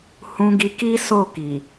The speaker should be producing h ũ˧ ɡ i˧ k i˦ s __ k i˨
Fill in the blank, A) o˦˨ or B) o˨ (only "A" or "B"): A